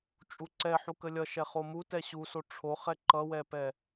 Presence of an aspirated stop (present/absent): present